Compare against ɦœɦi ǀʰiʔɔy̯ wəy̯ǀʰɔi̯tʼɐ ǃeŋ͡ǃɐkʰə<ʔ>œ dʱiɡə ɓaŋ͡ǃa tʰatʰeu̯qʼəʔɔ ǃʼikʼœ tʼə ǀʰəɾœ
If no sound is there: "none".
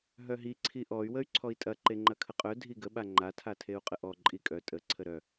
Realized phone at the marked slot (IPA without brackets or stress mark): qʼ